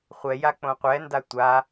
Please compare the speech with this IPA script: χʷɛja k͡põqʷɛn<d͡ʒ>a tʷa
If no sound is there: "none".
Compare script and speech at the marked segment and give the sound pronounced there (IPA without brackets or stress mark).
d